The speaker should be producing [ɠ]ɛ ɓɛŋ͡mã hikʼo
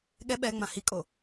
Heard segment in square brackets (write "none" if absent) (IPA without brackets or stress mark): ɠ